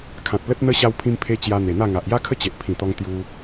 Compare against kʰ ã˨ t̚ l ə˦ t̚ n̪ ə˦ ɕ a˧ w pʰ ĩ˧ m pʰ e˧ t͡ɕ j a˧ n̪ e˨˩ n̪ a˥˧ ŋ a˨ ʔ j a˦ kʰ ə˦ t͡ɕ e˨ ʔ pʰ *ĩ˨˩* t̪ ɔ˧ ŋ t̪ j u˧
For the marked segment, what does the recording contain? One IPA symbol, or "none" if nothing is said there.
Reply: ĩ˨˩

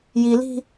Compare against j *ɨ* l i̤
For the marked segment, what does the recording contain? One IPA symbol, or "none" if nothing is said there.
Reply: i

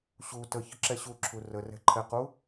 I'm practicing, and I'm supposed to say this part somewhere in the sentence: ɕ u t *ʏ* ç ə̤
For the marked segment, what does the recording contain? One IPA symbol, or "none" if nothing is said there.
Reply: ə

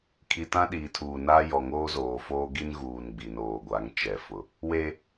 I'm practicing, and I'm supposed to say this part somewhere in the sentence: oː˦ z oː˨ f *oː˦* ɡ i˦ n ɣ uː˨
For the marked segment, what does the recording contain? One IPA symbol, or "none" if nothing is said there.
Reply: oː˦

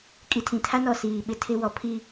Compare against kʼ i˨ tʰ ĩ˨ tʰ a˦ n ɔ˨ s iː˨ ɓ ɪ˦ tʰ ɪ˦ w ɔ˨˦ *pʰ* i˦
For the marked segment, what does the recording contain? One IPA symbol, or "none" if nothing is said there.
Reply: pʰ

